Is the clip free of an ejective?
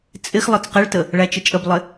no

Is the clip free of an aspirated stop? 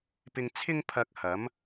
no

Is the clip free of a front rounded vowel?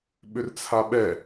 no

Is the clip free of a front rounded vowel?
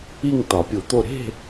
yes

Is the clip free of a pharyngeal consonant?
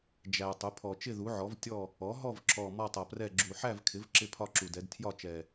no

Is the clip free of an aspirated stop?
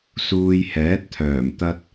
no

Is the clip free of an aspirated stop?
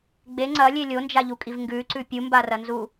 yes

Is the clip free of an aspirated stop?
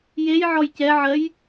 yes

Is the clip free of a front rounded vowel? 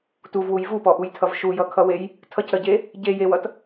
yes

